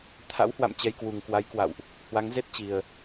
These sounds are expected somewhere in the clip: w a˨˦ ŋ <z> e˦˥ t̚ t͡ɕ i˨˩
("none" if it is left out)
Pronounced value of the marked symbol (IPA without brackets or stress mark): z